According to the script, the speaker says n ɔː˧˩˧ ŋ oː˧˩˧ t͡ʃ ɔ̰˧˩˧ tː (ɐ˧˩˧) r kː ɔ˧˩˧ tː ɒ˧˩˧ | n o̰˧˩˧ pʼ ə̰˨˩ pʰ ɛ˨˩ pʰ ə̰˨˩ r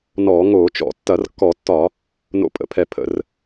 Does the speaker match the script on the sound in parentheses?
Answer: yes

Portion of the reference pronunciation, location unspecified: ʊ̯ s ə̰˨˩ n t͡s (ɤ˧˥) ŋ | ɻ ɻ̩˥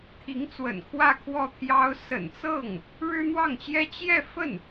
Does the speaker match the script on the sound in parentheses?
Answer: no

